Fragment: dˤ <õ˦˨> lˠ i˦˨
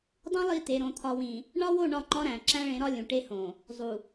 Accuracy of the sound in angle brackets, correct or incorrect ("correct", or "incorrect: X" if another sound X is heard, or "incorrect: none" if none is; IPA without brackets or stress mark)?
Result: incorrect: õ˦